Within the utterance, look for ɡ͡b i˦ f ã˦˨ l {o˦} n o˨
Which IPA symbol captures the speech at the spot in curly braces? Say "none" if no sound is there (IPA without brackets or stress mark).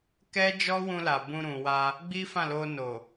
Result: o˧